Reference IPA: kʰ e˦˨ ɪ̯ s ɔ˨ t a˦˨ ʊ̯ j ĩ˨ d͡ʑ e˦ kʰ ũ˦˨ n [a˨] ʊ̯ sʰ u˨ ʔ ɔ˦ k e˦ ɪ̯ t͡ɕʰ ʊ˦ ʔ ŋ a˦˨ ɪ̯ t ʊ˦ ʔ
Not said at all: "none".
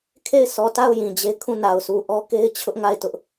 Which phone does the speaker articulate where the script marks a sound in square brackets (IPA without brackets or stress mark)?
a˨